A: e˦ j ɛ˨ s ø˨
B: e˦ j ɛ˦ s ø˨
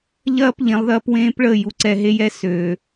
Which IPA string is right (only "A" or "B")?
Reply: B